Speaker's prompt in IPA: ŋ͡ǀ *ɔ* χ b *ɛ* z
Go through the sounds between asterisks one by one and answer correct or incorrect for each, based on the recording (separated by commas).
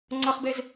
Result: incorrect, incorrect